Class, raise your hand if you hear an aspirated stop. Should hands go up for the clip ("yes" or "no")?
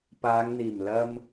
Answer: no